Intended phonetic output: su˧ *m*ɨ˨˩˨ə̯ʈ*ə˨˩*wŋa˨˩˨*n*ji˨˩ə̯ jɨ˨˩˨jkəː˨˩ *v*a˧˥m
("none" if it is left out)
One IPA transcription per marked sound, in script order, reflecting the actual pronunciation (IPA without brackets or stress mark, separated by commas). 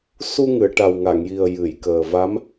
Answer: ŋ, a˨˩, ŋ, v